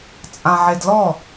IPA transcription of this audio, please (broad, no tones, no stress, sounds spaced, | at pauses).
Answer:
t͡sʼ ã ʕ e d l ɔ